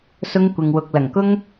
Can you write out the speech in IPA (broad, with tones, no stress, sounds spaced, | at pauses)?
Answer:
s ʊ˥ ŋ kʷ ɪ˧ ŋ w ʊ˧ k̚ l ɐ˨˩ ŋ k ʊ˥ ŋ